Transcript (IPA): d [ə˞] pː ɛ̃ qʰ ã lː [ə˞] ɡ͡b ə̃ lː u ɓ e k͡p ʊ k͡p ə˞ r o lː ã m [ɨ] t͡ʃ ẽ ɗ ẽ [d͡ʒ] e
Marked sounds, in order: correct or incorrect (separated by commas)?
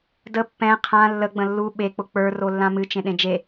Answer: incorrect, incorrect, correct, correct